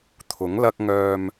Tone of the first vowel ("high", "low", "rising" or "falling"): rising